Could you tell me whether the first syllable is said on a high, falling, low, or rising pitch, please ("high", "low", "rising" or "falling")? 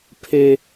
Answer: high